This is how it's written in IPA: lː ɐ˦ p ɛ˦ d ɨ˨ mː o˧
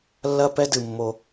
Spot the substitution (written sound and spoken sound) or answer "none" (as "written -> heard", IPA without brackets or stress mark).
none